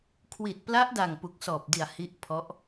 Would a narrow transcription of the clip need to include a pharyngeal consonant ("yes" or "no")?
no